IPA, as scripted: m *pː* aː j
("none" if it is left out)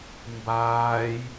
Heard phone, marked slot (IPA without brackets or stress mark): b